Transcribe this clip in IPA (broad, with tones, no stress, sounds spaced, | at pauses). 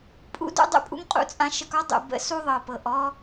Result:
pʼ ṵ˦ d ṵ˦ dˤ ṵ˦ pʼ ṵ˦ ŋ qʼ ṵ˦ t͡sʼ ã˦ ʃ ə˦ k ɔ˦ dˤ ṵ˨ b ə̰˦ s u˦ ðˤ ɤ˨ p ɤ˨ ʔ ɔ˦